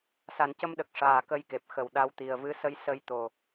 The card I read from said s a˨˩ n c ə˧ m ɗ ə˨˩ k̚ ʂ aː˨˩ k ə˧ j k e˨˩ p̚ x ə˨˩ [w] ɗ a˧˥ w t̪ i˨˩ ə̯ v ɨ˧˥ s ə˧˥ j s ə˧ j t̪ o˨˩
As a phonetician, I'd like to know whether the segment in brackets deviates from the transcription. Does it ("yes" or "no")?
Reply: no